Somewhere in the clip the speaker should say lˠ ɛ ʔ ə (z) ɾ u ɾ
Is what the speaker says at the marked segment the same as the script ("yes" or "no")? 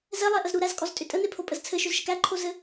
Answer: yes